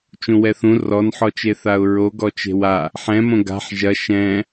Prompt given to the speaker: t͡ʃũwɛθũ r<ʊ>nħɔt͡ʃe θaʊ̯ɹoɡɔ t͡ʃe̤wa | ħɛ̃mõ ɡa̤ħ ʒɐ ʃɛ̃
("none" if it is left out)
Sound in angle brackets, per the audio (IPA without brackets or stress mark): ɔ